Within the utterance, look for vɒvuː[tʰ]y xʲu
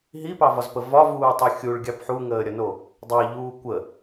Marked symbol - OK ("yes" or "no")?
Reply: no